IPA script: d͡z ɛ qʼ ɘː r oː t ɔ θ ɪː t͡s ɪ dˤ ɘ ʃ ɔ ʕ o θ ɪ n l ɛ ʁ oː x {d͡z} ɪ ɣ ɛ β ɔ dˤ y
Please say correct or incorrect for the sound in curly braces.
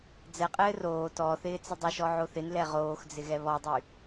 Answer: correct